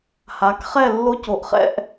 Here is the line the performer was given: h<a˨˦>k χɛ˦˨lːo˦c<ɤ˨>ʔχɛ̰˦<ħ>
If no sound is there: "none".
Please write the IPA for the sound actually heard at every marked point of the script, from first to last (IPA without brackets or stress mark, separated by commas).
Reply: a˨˦, o˨, ʔ